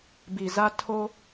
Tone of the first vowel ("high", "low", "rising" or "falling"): low